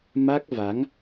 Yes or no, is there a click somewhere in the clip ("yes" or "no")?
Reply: no